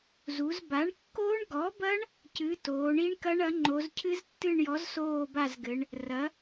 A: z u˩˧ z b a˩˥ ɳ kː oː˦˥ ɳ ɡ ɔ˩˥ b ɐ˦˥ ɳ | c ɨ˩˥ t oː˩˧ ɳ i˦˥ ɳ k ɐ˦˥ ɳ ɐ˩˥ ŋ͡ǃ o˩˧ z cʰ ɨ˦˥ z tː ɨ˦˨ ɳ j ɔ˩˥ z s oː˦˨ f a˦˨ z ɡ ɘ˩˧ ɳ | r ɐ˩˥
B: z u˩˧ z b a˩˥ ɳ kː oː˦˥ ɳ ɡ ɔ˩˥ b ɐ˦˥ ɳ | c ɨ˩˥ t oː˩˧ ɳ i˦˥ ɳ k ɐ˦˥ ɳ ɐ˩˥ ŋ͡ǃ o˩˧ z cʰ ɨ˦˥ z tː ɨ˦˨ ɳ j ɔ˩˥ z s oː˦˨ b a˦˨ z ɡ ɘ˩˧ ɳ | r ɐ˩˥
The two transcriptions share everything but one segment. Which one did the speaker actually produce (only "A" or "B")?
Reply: B